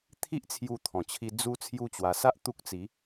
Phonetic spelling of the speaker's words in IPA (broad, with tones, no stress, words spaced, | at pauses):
t̪ʰi˦ʔt͡sʰju˧t̪ʰɔ̃˨˩t͡ɕʰi˧ d͡zu˦ t͡sʰju˦t͡ɕwa˧ sa˦ʔ t̪u˦k̚t͡si˨˦